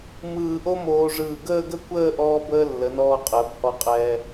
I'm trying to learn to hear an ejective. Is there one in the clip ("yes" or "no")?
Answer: yes